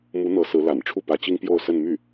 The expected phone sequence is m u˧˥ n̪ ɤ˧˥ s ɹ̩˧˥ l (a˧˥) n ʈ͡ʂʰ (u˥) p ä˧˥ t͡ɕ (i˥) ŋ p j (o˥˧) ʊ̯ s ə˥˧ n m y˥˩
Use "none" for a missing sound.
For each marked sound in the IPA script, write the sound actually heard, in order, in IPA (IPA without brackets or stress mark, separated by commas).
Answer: a̰˨˩, u˥˩, i˥, o˥˧